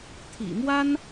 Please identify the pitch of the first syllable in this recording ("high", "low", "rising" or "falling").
low